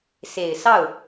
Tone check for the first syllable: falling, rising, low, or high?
low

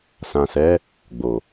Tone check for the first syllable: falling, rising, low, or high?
low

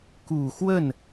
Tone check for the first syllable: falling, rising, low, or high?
low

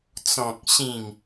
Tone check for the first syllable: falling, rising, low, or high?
low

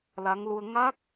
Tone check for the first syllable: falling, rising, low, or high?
rising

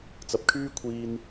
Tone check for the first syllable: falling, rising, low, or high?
low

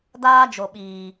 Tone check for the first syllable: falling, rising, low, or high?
high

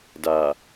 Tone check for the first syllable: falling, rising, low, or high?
low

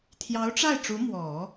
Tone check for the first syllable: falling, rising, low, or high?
rising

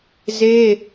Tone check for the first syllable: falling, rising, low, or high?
high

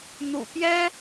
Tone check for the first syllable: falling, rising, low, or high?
low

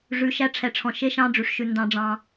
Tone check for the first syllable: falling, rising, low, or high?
low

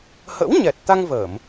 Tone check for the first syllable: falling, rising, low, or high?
rising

